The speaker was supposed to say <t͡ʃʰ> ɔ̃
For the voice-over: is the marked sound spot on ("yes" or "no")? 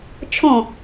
yes